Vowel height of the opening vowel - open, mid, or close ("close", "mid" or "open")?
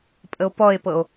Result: mid